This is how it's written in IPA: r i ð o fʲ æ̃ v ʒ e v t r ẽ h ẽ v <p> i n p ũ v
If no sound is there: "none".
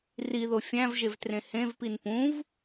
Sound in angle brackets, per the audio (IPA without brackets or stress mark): p